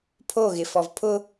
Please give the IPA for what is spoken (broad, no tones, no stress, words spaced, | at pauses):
pʰoɣɪfɔv pʰʊ